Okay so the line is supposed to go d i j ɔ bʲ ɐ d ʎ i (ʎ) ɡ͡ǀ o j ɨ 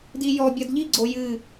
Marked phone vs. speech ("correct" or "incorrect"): incorrect